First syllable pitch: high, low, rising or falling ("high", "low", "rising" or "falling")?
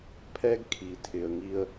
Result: high